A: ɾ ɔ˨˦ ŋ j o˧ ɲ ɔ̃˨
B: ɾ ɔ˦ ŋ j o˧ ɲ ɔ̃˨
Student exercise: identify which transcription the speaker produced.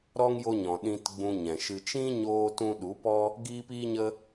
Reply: B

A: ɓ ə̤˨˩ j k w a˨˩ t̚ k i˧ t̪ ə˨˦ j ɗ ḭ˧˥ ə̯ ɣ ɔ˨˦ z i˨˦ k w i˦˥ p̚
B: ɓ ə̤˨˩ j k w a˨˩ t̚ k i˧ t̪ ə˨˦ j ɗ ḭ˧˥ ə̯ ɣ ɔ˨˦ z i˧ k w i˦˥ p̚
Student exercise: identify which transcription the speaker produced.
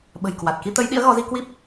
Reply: B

